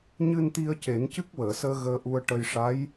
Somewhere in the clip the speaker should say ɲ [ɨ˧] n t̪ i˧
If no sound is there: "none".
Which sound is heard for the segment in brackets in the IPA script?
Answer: ɨ˧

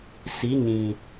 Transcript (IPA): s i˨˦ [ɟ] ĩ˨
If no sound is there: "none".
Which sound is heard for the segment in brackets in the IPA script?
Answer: ɲ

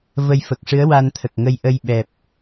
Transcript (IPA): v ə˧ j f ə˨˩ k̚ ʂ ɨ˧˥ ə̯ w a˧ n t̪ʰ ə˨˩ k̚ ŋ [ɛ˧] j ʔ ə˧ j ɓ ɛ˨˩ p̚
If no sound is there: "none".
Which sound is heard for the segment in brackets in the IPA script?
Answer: ə˧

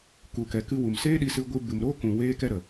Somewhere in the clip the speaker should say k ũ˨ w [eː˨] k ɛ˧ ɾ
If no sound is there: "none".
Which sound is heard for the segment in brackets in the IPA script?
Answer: eː˧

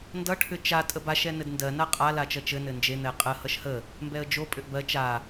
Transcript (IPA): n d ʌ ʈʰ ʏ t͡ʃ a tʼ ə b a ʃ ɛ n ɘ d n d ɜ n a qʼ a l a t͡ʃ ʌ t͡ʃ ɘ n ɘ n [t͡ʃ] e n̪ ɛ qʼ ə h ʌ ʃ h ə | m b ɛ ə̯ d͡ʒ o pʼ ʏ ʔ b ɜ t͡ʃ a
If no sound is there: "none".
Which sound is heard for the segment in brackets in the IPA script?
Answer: d͡ʒ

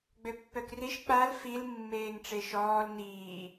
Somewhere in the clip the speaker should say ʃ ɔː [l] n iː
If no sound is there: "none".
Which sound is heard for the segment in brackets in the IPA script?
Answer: l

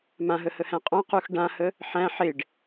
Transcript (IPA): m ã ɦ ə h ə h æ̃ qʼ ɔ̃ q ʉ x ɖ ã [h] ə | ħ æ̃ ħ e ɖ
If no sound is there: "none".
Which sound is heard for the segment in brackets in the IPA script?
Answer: h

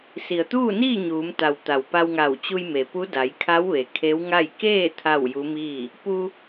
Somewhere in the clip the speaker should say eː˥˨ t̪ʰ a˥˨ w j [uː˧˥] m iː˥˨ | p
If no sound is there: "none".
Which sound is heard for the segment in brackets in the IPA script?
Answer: u˧˥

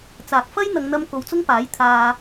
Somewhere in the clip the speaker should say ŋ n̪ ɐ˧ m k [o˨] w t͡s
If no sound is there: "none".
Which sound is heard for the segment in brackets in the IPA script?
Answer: o˨˧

